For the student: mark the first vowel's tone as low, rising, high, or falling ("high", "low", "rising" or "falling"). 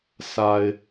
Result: low